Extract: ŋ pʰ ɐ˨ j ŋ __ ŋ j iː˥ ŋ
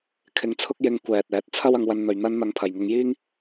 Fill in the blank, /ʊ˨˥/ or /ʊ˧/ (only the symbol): ʊ˧